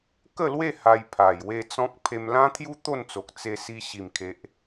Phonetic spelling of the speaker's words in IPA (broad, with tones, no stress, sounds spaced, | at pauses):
k ə˥˧ l w e˥˧ h a˧ j pʰ a˨˩ j w e˥˧ t͡s ɔ̃˦ k̚ pʰ e˧ m l ã˦ t̪ʰ j u˦ t̪ o˥˧ n t͡s o˨ k̚ t͡s e˧ s i˧ ɕ i˨˩ m kʰ e˨ ʔ